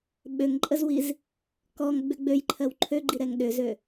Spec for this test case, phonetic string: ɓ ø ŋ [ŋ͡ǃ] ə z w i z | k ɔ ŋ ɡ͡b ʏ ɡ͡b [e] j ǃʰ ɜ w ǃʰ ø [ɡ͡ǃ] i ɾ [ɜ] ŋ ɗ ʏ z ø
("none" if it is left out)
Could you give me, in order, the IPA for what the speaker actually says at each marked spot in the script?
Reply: ǃʼ, ø, ɡ͡ǃ, ɛ

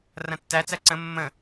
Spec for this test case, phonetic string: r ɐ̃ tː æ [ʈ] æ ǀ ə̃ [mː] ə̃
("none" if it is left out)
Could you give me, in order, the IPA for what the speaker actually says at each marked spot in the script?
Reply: t͡s, mː

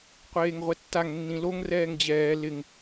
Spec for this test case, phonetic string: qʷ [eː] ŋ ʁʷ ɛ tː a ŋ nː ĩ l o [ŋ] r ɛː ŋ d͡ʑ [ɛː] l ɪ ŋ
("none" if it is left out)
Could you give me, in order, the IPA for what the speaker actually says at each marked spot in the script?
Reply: eː, ŋ, ɛː

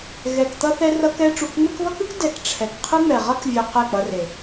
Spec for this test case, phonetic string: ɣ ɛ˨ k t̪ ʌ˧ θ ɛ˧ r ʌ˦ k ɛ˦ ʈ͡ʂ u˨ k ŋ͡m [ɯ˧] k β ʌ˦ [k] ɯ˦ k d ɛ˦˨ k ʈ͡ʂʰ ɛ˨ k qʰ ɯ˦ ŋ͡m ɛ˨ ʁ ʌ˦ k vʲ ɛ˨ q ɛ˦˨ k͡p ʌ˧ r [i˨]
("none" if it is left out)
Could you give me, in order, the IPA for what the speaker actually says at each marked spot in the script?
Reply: ɯ˧, k, e˨

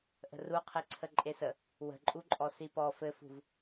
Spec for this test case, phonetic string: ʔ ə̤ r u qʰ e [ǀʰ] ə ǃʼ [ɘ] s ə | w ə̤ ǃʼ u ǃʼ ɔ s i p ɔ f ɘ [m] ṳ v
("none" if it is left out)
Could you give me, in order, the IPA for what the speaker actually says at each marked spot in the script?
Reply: ǀʰ, e, f

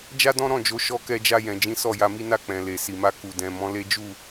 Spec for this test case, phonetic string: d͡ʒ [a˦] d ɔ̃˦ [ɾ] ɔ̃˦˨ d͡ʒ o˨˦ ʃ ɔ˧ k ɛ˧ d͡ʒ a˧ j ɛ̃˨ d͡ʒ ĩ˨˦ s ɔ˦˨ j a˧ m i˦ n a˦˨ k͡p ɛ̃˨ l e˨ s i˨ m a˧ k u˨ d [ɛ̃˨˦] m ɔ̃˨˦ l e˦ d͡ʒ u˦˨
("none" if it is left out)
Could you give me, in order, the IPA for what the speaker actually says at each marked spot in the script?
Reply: a˦, ɾ, ɛ̃˨

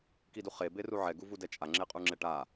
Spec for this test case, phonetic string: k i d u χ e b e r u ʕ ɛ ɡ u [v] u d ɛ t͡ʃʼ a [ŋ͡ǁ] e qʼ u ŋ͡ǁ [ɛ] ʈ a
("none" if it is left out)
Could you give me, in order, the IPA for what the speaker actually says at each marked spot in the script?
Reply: v, ŋ͡ǁ, ɛ

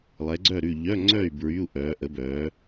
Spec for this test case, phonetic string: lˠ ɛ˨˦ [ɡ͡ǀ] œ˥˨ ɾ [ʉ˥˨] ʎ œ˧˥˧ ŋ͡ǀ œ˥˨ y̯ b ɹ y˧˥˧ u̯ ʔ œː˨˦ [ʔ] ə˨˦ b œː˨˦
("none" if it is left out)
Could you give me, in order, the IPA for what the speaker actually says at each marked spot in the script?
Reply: ɡ͡ǀ, ʉ˥˨, ʔ

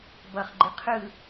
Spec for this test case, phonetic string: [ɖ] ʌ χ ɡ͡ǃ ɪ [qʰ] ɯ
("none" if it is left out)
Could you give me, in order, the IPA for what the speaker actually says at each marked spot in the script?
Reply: b, qʰ

